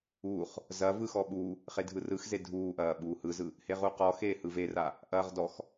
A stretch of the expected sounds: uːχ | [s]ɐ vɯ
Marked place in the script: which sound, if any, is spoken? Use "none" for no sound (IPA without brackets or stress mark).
z